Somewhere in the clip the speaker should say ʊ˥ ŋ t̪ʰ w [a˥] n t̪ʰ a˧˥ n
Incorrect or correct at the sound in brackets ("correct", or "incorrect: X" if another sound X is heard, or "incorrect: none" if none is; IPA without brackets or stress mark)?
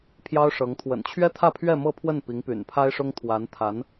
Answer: incorrect: a˧˥